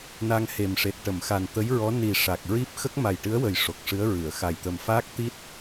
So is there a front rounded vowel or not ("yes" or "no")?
no